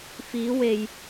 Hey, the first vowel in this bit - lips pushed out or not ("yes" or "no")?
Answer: no